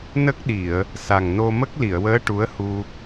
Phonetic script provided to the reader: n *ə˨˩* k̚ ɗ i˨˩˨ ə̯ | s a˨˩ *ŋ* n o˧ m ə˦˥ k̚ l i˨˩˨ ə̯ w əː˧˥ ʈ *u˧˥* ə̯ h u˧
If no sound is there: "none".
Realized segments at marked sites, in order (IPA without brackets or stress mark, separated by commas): ə˦˥, ŋ, u˧˥